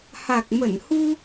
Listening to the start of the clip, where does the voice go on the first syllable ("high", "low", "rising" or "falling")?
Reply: low